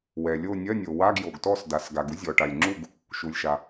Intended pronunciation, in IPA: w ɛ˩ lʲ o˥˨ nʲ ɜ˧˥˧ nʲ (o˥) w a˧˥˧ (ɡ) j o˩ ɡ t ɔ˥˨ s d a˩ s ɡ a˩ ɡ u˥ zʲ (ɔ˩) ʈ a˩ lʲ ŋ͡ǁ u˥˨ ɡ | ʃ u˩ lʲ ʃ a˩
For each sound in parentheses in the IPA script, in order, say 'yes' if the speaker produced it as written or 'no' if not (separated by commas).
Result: no, yes, yes